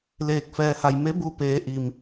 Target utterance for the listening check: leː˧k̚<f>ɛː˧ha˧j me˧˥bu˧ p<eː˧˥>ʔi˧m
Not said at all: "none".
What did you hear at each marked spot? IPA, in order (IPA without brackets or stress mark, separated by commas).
f, eː˧˥